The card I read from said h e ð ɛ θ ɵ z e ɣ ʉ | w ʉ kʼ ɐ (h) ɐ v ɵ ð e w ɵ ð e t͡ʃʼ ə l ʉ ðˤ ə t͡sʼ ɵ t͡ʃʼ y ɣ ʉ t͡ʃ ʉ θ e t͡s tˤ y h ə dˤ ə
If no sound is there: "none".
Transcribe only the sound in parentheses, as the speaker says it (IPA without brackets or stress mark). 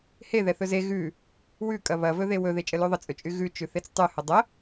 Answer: β